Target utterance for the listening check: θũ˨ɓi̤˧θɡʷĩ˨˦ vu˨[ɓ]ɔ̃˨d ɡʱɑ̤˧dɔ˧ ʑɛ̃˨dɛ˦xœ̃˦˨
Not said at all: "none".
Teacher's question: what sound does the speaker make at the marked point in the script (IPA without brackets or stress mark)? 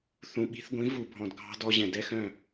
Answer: bʱ